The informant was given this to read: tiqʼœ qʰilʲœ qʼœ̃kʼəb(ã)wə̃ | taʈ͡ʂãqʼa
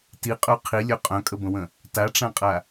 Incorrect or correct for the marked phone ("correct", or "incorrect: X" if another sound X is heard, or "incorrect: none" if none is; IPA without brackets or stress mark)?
incorrect: ə̃